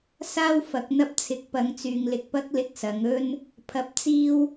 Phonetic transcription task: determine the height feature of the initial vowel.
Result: low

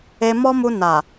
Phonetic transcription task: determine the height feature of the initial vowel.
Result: mid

